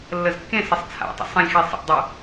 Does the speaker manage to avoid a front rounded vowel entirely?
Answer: no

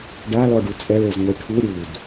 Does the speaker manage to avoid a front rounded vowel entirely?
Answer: yes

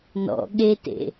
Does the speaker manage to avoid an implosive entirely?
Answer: no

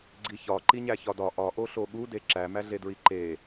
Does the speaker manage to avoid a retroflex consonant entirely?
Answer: yes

